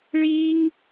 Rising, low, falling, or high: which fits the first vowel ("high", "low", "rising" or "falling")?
high